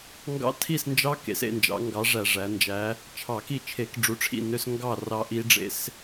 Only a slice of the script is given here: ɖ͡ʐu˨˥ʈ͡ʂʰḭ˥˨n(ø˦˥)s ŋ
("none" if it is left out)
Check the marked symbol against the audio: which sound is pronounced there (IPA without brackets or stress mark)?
ø˦˥